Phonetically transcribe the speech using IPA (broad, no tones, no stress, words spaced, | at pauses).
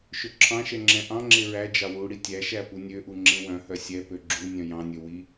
ʃɵǁʰɑ̃ʃɛ ŋ͡ǁɛ̃ʔɑ̃ŋ͡ǁe ɹæd͡ʒɑ wu ɽitʲæʃæ punʲøʔu ŋ͡ǁẽwœ̃hœ sʲɛpø ɡ͡ǁu nʲœ̃jɑ̃nʲɵ wi